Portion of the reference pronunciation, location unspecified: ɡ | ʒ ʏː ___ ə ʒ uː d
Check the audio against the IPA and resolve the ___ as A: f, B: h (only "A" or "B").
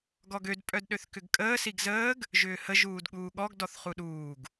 B